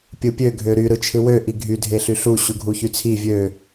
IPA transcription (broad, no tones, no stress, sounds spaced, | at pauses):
pʲ ɯ pʲ ø ɡʱ ø ɾ y ɾ ɯ t͡ʃʰ ɯ w ø ʔ i ɡʱ y dʱ e ɬ y ɬ u ɕ u ɡʱ u ç y t͡sʰ i vʲ ø